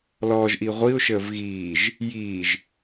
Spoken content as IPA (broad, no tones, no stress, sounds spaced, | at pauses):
l ɔː ʒ ʔ i ʁʷ i ʊ̯ ʃ əː v ɣ iː ʒ | j iː ʒ